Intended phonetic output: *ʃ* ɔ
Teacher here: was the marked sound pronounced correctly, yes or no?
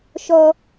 yes